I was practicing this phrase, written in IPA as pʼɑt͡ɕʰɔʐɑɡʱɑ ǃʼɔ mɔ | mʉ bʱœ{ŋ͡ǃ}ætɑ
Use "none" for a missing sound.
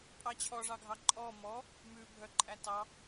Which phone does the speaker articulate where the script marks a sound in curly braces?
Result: ǃʼ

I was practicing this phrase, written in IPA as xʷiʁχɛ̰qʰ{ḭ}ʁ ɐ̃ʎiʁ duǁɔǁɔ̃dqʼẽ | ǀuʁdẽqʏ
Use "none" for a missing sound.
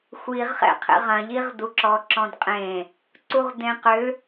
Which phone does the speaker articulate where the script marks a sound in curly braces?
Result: ḛ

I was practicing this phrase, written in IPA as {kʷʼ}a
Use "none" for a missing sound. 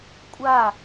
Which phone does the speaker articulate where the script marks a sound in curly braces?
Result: kʷʼ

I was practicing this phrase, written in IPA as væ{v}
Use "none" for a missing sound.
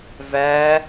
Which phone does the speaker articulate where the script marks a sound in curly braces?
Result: none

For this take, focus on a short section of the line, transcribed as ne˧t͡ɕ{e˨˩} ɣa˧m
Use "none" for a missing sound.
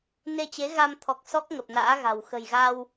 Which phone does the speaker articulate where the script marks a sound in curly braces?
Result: e˨˦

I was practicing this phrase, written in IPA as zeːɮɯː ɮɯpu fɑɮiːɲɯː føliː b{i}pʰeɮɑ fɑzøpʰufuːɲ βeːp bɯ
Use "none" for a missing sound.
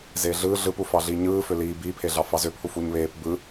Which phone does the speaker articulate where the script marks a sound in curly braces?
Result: iː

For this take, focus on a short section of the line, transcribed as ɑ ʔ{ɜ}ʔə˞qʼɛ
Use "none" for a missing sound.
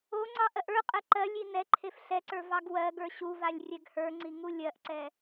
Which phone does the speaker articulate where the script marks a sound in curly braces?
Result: ɜ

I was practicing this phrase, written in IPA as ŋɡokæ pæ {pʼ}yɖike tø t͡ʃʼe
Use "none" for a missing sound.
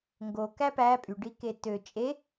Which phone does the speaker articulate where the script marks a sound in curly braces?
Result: pʼ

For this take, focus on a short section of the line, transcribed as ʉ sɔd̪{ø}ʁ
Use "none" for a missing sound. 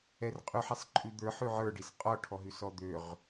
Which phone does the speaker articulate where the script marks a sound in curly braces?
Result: ø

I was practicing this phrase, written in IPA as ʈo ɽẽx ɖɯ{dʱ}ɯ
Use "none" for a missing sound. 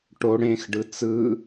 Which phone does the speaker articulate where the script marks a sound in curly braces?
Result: t͡s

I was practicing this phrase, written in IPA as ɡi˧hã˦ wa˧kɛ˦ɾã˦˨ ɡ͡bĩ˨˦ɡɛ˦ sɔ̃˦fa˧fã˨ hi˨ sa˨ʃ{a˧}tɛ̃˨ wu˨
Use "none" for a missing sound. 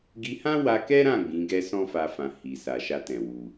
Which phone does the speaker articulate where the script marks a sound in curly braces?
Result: a˧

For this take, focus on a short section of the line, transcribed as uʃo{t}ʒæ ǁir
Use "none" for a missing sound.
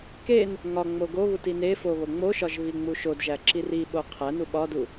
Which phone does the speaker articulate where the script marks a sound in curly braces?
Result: d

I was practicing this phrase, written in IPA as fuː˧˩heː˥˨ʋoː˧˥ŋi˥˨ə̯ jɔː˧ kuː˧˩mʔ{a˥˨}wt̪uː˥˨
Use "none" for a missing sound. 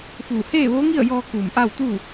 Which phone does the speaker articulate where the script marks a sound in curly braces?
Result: a˥˨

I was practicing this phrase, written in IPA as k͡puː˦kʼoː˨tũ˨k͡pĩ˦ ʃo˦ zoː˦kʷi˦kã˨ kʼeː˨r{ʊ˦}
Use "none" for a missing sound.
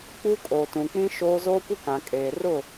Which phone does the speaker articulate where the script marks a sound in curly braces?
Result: ʊ˦˨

